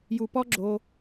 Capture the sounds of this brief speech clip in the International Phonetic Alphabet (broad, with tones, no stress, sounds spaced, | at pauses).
j u˨ p ɔ˦ ɡ͡ǁ o˧